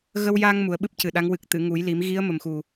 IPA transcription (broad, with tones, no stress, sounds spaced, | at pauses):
ɣ ə˧ w j a˧ ŋ m u˨˩˦ ə̯ ɓ ɨ˦˥ p̚ c ɨ˨˩ ɗ a˧˥ ŋ w ɨ˨˩ k̚ t̪ ɨ˨˩˨ ŋ u˨˩˦ j l i˨˩˦ m ɣ i˧˥ ə̯ m ə˨˩ m x u˨˩